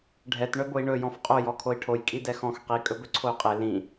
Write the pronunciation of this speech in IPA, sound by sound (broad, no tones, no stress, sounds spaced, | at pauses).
ɖʱ ɛ t ɳ œ b o i̯ ɳ ɵ j ɔ̃ f qʼ o j ɔ kʰ o i̯ ʈʰ o j kʼ i d ɛ x ɔ̃ x q i kʼ ɵ b ɵ ǀʰ o y̯ qʼ e l ĩ